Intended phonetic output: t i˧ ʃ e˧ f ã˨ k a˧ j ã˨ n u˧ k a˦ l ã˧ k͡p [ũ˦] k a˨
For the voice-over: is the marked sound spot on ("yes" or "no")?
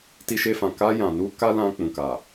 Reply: no